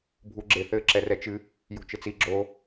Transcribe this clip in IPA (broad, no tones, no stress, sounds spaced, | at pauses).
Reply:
bʱ u ɡ͡ǁ e θ ɘ ǁ ɛ r ɛ t͡ʃ ɨ | j o̤ t͡ʃ ɘ t͡s i ɡ͡ǁ o